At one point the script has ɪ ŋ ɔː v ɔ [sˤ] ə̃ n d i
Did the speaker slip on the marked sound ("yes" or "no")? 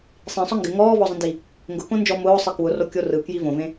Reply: yes